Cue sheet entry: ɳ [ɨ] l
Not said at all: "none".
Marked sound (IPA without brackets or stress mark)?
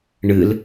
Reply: ɨ